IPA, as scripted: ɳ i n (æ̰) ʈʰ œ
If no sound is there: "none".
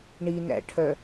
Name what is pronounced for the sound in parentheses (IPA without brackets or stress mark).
æ̰